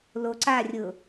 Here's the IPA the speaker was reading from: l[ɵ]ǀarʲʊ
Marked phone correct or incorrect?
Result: incorrect: o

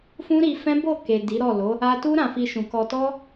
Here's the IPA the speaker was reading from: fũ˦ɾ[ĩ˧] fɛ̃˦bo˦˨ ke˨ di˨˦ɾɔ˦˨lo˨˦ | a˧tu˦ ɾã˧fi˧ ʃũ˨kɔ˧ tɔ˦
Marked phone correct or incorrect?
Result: incorrect: i˧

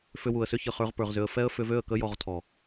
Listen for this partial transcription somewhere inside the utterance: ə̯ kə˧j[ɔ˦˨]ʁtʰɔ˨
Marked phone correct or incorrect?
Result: incorrect: ɔ˨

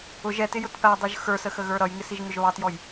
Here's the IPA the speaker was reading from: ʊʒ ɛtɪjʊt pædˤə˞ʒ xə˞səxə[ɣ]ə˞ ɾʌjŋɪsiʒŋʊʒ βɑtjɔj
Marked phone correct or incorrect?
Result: correct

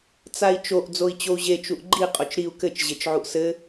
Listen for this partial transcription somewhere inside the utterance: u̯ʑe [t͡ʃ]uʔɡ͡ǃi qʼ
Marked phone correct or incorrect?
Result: correct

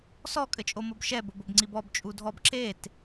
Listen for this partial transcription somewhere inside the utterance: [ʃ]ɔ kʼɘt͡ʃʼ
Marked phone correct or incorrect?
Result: incorrect: s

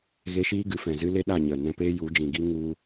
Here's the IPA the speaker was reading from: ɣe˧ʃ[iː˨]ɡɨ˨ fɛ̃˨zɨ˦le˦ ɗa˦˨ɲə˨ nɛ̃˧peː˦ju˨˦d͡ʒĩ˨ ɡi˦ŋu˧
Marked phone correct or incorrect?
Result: incorrect: iː˦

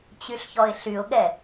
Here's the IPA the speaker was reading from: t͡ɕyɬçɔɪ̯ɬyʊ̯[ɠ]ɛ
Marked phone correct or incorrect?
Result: correct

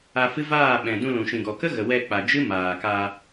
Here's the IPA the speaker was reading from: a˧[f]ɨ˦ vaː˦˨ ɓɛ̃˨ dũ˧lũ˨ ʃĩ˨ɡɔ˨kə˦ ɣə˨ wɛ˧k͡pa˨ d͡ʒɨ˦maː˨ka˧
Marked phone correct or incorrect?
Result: correct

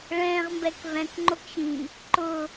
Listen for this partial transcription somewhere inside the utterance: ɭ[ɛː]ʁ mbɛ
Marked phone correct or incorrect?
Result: incorrect: ɛ̃ː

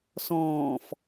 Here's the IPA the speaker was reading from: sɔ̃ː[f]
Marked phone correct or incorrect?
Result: correct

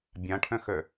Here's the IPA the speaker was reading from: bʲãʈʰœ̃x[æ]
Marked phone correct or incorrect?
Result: incorrect: œ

